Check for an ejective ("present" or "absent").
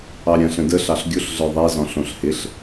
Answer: absent